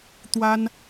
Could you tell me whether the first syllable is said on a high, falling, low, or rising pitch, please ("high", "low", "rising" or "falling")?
high